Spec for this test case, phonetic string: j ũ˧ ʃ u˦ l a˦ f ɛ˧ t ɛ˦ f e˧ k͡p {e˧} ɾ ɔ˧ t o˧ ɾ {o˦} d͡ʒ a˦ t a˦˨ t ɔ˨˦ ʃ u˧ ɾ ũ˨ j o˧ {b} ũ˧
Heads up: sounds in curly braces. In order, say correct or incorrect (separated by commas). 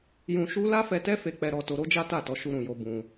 incorrect, correct, correct